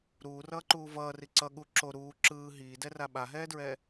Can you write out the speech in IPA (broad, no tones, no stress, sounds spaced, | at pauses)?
ɾ uː r ʌː ǃ uː v ʌː r i ǀ ʌ ɠ u ǁ o ɾ uː ǁ ɯː ɦ iː d ɛ r a ɓ a ɦ ɛː d ɹ ɛ